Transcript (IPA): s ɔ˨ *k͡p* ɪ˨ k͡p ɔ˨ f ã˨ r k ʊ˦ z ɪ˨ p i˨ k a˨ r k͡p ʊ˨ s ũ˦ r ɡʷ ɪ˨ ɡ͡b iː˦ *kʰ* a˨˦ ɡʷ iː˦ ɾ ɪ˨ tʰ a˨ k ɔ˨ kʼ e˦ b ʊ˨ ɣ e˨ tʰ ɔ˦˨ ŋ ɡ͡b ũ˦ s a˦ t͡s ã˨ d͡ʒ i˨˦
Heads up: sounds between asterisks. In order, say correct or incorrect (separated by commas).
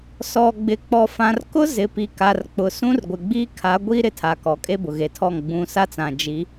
incorrect, correct